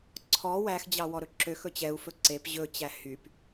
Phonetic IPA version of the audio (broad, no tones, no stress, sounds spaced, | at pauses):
ǀʰ ɔ w æ x d͡ʑ ɑ w ɔ ɾ ɵ ǁ ø x ɵ t͡ɕ ɛ u̯ f ɵ ǀ e p ʑ ɵ t͡ɕ æ h y p